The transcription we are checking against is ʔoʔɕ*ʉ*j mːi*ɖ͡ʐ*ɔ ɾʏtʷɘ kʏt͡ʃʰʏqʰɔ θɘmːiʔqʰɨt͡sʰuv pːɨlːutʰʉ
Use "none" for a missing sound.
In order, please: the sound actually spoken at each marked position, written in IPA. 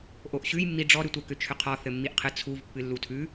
ʉ, ɖ͡ʐ

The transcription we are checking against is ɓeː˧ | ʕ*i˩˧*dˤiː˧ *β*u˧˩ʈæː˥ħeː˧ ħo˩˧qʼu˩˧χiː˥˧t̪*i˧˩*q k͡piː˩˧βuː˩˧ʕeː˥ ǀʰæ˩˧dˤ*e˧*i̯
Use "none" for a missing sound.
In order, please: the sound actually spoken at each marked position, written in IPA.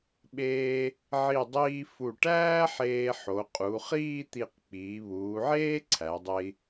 i˧˩, f, i˧˩, e˧

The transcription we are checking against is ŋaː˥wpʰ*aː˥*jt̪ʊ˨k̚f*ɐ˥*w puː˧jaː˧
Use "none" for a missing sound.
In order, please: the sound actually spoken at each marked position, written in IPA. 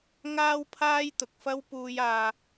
aː˥, ɐ˥

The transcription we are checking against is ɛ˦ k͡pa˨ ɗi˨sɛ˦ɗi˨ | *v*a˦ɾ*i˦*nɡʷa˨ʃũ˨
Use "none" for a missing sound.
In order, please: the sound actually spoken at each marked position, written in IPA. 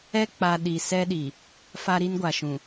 f, i˦

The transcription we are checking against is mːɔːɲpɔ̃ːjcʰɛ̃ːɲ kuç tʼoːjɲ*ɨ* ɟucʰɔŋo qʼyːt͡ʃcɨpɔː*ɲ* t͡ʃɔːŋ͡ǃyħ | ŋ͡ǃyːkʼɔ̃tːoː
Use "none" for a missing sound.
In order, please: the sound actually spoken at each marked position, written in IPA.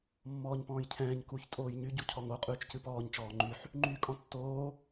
y, ɲ

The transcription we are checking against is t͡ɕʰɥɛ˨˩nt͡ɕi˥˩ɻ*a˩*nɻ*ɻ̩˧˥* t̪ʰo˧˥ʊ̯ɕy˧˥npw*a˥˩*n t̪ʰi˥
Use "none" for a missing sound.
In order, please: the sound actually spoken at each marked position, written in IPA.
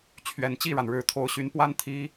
a˩, ɻ̩˨˩, a˥

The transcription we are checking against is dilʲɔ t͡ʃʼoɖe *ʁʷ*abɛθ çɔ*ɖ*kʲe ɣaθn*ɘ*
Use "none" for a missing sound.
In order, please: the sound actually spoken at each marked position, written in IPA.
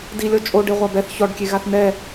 ʁʷ, ɖ, ɛ

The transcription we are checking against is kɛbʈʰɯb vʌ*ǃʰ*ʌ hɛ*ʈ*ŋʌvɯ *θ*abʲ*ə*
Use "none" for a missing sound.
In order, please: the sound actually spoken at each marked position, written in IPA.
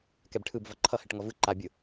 ǃʰ, ʈ, ǃ, ɯ

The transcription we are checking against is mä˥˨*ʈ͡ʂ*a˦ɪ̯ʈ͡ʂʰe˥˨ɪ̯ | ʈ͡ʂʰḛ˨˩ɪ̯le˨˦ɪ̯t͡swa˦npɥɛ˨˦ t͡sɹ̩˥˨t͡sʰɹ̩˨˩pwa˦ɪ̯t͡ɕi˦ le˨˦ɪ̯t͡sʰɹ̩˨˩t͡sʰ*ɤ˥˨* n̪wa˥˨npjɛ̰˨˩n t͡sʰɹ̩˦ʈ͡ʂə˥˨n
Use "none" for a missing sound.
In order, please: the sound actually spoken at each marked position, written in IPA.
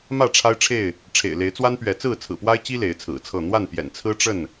ʈ͡ʂʰ, ɤ˥˨

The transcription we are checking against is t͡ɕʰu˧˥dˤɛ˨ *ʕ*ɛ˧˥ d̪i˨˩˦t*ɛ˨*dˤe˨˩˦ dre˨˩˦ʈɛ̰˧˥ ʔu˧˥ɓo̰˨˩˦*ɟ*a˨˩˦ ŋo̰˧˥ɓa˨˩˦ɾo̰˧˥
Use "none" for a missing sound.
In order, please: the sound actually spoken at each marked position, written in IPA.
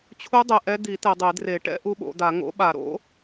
ʔ, ɛ˨, d̪

